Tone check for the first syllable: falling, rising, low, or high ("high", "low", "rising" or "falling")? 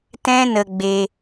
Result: high